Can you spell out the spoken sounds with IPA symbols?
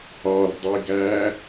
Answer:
ɒ r dˤ i ɡ æ

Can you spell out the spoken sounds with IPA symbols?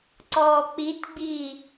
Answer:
ǀ ɔː k͡p i t ɡ͡b iː

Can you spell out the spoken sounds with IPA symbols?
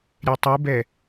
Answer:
ɾʲ ɛ tˤ u b ɛ

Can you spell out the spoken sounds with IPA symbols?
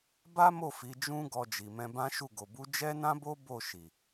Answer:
b a˦ m o˦˨ f i˨˦ d͡ʒ ũ˦ ɡ ɔ˦ d͡ʒ i˧ m ɛ̃˦ b ã˦ ʃ u˦˨ ɡ o˨ b u˨˦ d͡ʒ ɛ˦ n ã˦ b o˦ b o˦˨ ʃ i˨

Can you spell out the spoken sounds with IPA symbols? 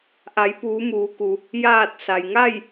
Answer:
ʔ a˩˧ j p uː˩˧ m uː˩˧ k u˩ | j aː˧˩ t̚ s a˩ j ŋ a˥˨ j

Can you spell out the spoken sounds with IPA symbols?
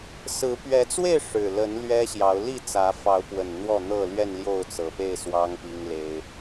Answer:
s ɹ̩˨˦ p ɥ ɛ˨˦ t͡s w e˥˨ ɪ̯ ʂ ɻ̩˨˩ l ə˨˦ n l ɥ ɛ˦ ɕ j ɑ˨˦ ʊ̯ l i˥˨ t͡s ä˨˦ f ɑ˨˦ ʊ̯ p w ə˨˩ n n̪ w ɔ˥˨ n̪ ɤ˥˨ l ɥ ɛ˥˨ n l j o˥˨ ʊ̯ t͡s ɤ˨˩ p e˥˨ ɪ̯ s w ɑ˦ ŋ p i˦ ŋ l e˦ ɪ̯

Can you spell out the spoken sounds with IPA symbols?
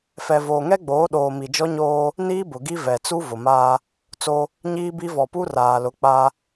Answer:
f ɛ˨ v oː˨ ŋ ɛ˦ ɡ͡b oː˨˦ ɗ oː˨ m i˨ d͡ʒ ɔ˦ ɲ oː˦ | n iː˦ b ʊ˨ ɡ i˦ v ɛ˨ t͡s u˦ v ʊ˨ m aː˦ | t͡s o˦ | ɲ iː˦ b i˦ v ɔ˨ p u˦ r aː˨ l ʊ˨˦ k͡p a˦

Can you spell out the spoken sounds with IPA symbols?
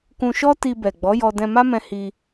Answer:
k ũ˧ ʃ ɔ˦ t i˧ b ɛ˨ ɡ͡b ɔ˨˦ j ɔ˧ d ɛ̃˧ m a˦ m ɛ̃˧ h i˧

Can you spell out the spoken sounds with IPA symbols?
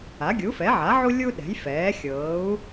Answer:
a˩˥ ɡʲ u˩˥ f ɛ˩˥ ʕ a˩˥ ʕ u˥ lʲ u˥ ɗ ɛ̤˩˥ j f ɛː˩˥ xʲ ɤː˩˥ u̯

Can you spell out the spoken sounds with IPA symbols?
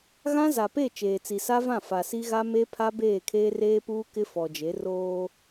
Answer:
ɣ ã˦ z a˨ p e˦˨ t͡ʃ eː˨ t͡s i˨ s a˦ v ã˦˨ f a˨ s i˦ ɣ a˦ m e˦ pʰ a˦ b eː˦˨ kʰ eː˦ r eː˦ p uː˦ k ɪ˦ f ɔ˨ d͡ʒ e˨˦ r oː˦

